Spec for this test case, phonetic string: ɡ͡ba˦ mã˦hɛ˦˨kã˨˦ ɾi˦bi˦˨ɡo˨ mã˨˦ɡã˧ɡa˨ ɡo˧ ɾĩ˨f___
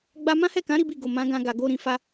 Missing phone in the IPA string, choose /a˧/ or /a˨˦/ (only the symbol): a˧